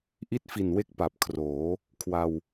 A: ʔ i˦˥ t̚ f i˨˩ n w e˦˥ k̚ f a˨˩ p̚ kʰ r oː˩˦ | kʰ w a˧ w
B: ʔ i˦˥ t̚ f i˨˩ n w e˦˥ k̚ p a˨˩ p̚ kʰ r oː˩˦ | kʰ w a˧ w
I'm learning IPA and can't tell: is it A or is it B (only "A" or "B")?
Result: B